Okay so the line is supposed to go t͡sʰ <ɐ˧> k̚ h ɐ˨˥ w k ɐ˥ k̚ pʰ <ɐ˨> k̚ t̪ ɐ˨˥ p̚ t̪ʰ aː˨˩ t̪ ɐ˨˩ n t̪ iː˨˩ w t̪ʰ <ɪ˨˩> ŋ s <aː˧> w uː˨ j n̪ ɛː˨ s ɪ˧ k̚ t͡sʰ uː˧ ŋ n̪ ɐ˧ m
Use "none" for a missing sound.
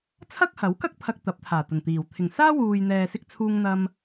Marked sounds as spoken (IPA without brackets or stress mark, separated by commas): ɐ˥, ɐ˧, ɪ˨˩, aː˥